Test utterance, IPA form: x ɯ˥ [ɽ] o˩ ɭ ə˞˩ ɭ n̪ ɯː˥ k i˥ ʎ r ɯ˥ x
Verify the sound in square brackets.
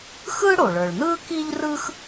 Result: correct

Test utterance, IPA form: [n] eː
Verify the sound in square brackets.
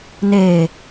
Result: correct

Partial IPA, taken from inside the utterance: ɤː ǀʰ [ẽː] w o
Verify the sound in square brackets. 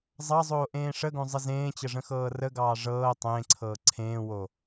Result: correct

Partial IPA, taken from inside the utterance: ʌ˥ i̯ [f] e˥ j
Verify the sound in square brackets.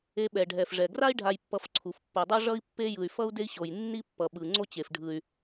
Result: incorrect: pː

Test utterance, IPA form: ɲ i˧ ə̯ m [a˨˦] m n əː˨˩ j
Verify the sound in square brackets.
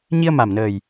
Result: incorrect: a˨˩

